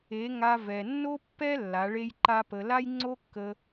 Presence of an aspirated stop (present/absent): absent